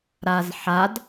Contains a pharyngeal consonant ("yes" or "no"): yes